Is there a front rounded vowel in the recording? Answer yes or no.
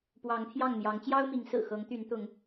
yes